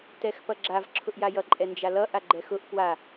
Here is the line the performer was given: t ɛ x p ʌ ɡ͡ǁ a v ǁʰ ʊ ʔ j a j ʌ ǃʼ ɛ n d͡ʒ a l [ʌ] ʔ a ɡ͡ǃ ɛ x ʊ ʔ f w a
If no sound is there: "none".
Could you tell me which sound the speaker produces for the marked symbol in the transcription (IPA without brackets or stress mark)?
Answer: ʌ